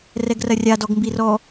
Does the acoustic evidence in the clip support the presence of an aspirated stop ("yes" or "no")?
no